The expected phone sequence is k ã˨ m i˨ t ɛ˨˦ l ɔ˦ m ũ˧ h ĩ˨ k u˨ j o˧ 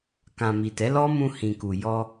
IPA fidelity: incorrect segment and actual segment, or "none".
o˧ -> ɔ˧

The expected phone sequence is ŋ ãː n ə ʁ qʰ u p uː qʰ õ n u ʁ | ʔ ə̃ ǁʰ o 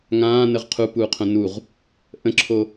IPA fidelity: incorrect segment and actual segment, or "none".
none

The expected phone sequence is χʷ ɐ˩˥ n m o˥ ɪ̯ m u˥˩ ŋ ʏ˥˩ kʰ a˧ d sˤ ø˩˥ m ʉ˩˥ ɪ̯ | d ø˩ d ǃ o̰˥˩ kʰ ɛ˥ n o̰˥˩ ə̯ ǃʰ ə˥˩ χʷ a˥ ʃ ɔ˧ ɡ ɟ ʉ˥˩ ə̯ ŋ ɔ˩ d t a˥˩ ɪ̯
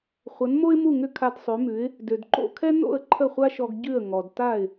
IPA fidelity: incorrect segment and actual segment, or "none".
none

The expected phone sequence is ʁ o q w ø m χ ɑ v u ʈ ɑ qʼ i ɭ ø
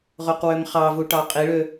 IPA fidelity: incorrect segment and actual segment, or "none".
none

